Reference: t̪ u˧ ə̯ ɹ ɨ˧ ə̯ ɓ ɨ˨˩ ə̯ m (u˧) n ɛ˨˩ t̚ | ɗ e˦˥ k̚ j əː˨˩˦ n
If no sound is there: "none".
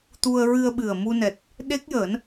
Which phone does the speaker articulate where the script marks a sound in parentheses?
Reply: u˧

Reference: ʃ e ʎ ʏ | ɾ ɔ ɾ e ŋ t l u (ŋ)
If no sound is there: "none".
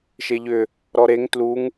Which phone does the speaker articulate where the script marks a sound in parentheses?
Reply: ŋ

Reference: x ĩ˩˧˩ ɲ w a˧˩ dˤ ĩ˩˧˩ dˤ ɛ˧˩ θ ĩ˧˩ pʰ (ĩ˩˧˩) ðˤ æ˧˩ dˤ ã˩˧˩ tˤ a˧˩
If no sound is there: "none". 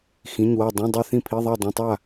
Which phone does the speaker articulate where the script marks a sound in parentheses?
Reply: i˩˧˩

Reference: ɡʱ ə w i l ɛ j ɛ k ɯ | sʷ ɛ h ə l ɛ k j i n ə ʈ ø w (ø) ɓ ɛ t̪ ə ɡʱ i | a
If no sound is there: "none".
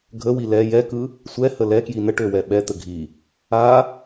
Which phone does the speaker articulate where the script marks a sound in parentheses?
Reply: ɛ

